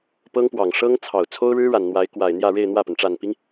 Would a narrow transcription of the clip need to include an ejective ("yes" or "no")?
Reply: no